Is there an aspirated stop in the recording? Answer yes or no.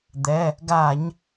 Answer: no